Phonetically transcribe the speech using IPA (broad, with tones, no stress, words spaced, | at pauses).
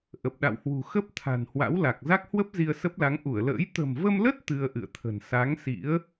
ʔə˨˩p̚ɗa̰˧˨whwṳ˨˩ xə˦˥p̚ t̪ʰa̤˨˩nhwa̰˧˥wla˨˩k̚ za˦˥k̚hwə˦˥p̚ zi˧ə̯sə˦˥p̚la˨˦ŋ ʔu˧˩ə̯lə̰ː˧˥j t̪ə̤˨˩mvə˧mlə˦˥t̚ t̪ɨ˧ə̯ʔɨ̰˧˨ə̯t̪ʰə̤˨˩n sa˨˦ŋsḭ˧˥ə̯